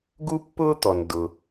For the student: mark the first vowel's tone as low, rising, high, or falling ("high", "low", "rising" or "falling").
high